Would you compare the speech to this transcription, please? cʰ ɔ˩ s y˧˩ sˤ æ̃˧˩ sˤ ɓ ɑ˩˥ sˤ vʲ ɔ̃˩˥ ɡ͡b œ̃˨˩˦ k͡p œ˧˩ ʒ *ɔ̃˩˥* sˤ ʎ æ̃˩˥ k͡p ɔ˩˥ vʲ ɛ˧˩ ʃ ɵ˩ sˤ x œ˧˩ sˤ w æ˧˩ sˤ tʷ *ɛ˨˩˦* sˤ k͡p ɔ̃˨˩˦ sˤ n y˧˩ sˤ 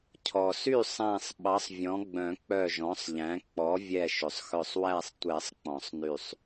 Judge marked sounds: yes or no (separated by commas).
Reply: yes, yes